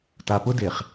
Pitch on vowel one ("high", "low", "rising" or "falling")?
low